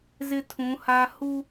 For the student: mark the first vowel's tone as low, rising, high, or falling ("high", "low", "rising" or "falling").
high